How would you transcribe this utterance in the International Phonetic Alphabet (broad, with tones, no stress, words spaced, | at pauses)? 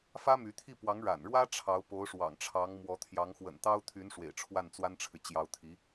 fä˥my˧˥t̪ʰi˥˩ pwɑ˧˥ŋ ɻa̰˨˩nɻwä˥ ʈ͡ʂʰɑ˧˥ʊ̯po˧˥ʊ̯ʂwɑ̰˨˩ŋʈ͡ʂʰɑ˧˥ŋ mwɔ˧˥t̪ʰjɑ˧˥ŋ xwə̰˨˩nt̪ɑ˥ʊ̯t̪ʰy˧˥n ʂwḛ˨˩ɪ̯ʈ͡ʂʰwa˥˩nt͡swa˥nʈ͡ʂʰɻ̩˨ t͡ɕjɑ˧˥ʊ̯t̪ʰi˧˥